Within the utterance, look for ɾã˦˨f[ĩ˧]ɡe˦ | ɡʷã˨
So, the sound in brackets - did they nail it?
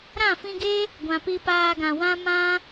yes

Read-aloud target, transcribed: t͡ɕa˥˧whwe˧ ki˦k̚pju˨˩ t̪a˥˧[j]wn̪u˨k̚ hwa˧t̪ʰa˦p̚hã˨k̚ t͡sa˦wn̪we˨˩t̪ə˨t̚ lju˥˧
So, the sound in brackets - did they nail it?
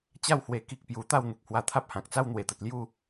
no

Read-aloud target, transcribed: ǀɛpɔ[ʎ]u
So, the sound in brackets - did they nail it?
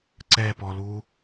no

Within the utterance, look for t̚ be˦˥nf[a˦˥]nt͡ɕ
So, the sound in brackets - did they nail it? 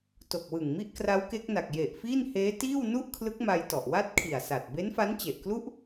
yes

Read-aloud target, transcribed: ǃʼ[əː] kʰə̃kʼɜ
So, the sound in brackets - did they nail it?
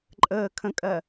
yes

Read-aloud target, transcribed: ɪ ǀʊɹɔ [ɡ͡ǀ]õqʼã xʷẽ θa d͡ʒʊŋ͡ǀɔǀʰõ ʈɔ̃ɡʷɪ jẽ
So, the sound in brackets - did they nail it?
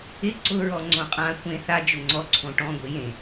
no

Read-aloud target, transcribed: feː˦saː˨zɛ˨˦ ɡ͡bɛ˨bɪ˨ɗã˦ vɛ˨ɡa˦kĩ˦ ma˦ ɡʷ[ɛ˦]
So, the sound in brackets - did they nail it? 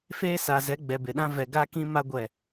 no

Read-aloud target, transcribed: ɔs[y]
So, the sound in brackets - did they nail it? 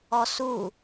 no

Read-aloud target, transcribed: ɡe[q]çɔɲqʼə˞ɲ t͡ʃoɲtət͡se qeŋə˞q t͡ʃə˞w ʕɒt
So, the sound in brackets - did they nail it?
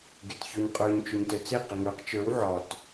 no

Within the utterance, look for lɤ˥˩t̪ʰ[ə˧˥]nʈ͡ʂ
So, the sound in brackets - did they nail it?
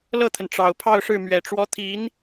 no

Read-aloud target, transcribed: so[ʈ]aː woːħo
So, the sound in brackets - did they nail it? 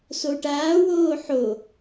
yes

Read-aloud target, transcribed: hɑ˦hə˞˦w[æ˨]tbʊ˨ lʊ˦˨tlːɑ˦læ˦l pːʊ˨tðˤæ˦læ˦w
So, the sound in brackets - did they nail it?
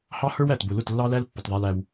yes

